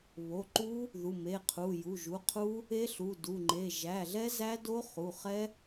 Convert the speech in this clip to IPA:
β o˩˧˩ ǃ u˦˥ | ð u˩˧˩ m e˩˧˩ qʰ u˩˧˩ j u˩˧˩ ʒ u˩˧˩ qʰ u˦˥ | e˦˥ ɬ u˩˧˩ d u˩˧˩ ŋ͡ǃ e˩˧˩ ʒ æ˩˧˩ ɮ ɛ˦˥ z æ˦˥ d o˦˥ χ u˩˧˩ χ ɛ˦˥

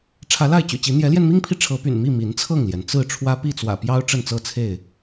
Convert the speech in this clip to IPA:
ʈ͡ʂʰ ä˨˦ l a˥˨ ɪ̯ t͡ɕ y̰˨˩ t͡ɕ i˨˦ n̪ j ɛ˨˦ l j ɛ˧ n m i˦ ŋ pʰ i˨ ʈ͡ʂʰ ɤ˨˦ p y̰˨˩ n m i˥˨ m i˨˦ n t͡sʰ ɤ˥˨ ŋ l j ɛ˩ n t͡s ɹ̩˥˨ ʈ͡ʂʰ w ä˦ p i˥˨ t͡s w ä̰˨˩ p j ɑ˦ ʊ̯ ʈ͡ʂ ə˥˨ n t͡s ɤ˥˨ t͡sʰ e˥˨ ɪ̯

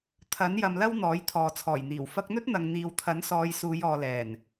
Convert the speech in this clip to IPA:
t̪ʰ ɐ˨˥ n j ɐ˧ m l ɐ˥ w n̪ ɔː˨˥ j t̪ʰ ɔː˨ t͡sʰ ɔː˨˩ j n̪ iː˨˩ w f ɐ˧ k̚ n̪ ɵ˥ t̚ n̪ ɐ˨ ŋ n̪ iː˨ w t̪ʰ ɐ˨˥ n s ɔː˨˧ j s uː˨˧ j ɔː˨ l ɛː˨˩ n

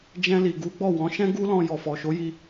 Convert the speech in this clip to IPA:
d͡ʒ ɛ̃˧ l i˨ ɡ u˨˦ ɡ͡b ɔ˦˨ w ɔ̃˨˦ ʃ ɛ̃˦ ɡ u˦ l ɔ̃˧ j ɔ˨ f ɔ˨ ʃ o˨˦ j i˧

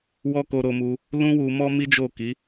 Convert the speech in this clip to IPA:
w ɔ˦ k o˧ ɾ o˧ m u˧ | l ũ˦ w u˧ m ɔ˦ m i˦ d͡ʒ o˦˨ k i˨˦

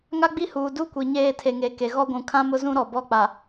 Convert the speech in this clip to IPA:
ŋ a˦ ɡ͡b i˦ h uː˨ d u˦˨ kʷ i˨ ɲ eː˦˨ tʰ e˨ ŋ e˨ k e˨ ɣ ɔ˦ ɡʷ ũ˨ kʰ ã˦ m ʊ˦ z ũ˦ ɾ ɔ˨ b ɔ˦˨ k͡p a˨

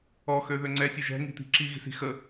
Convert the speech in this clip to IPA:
ɔ x ø ð ø ŋ͡ǀ ɛ sʲ ø ʒ ɛ̤ ŋ i̤ t̪ i̤ ǁ i ɣ i̤ s i̤ x ə

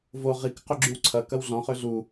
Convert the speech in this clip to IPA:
v o ʁ i k q ʏ ɡ͡ǁ y w ǀʰ ɐ k ɐ w ɮ ɔ̃ χ ø ɮ u

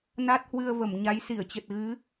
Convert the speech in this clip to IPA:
n a˦˥ t̚ h w ɨ˧ ə̯ v ə˧˩ m ɲ a˨˦ j s i˧˩ ə̯ t͡ɕ ə˨˩ t̚ ɣ ɨ˨˦

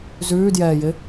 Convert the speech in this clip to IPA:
z ʉː d j ɛː j ɪ

